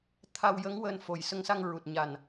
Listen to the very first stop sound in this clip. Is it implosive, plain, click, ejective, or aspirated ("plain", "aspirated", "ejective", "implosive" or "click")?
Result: aspirated